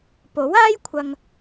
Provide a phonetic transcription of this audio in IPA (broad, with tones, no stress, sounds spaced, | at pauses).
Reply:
p o˨˥ w aː˥ j kʷʰ ɐ˨ ŋ